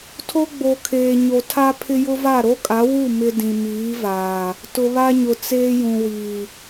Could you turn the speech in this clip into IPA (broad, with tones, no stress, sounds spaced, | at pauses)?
tʰ o˦ ɡ͡b o˨ kʰ eː˨ ɲ o˨ tʰ a˦ pʰ ɪ˦ j ʊ˦ v a˦˨ ɾ o˦ kʼ a˨˦ w u˦˨ m ɪ˦ d ĩ˨ m iː˨˦ v aː˨ | t ʊ˨ β a˦ ɲ ʊ˨ t͡s eː˦ j ũ˨ w iː˨